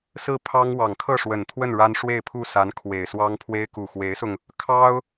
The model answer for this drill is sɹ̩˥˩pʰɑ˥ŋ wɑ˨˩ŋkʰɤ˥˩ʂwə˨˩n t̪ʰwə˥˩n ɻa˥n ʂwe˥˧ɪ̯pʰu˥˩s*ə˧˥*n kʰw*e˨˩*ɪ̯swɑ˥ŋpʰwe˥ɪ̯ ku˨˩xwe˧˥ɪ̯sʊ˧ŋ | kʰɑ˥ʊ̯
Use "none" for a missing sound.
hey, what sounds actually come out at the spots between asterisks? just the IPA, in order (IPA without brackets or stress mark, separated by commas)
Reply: a˧˥, e˨˩